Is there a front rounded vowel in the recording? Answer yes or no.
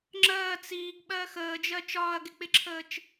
no